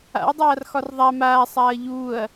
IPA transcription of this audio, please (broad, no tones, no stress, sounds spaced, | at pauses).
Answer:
a̰ ɐ̯ dˤ aː r x ɒ r ðˤ a m aː sˤ aː ɐ̯ ʎ uː ɐ̯